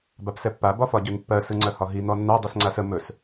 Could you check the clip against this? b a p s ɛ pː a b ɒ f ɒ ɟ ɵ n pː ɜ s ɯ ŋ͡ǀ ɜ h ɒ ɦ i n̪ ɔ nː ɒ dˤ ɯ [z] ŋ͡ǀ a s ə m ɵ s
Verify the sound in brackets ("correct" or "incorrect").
incorrect